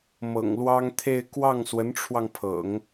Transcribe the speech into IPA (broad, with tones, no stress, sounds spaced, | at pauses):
m ɤ̰˨˩ ŋ l w ɑ˥ ŋ t̪ʰ e˥˧ ɪ̯ k w ɑ˥˩ ŋ s w ə˧˥ n ʈ͡ʂʰ w ɑ˧ ŋ pʰ ɤ̰˨˩˦ ŋ